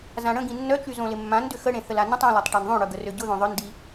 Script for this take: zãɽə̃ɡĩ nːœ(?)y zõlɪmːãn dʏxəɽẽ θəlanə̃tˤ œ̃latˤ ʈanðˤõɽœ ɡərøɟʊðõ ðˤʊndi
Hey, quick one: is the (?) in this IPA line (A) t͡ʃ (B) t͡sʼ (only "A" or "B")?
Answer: A